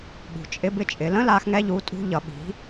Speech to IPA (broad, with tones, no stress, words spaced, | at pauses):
ɠṳ˩ t͡ʃʼɪ˧bɪ˧t͡ʃʼɪ˩˧ lə̃˧˥la˩˧xŋɛ˧ʎu˩˧ tʼṳ˧ʎʌ˩˧ ɓi̤˩˧